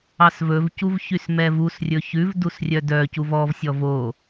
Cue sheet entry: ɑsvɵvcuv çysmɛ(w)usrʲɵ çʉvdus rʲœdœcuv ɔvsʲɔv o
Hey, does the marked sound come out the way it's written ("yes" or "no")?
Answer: no